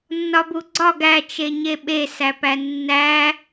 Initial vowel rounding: rounded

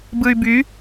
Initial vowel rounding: unrounded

